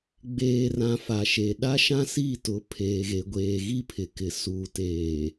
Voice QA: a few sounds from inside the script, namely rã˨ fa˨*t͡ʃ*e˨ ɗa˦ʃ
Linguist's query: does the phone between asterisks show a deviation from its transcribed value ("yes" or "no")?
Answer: yes